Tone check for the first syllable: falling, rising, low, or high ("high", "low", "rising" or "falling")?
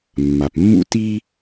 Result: low